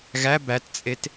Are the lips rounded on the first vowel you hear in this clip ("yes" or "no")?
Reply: no